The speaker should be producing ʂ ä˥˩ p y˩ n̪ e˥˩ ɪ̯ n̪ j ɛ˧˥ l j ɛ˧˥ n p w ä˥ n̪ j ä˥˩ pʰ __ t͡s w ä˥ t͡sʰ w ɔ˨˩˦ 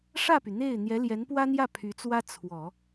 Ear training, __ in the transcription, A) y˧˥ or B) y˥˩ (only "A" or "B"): A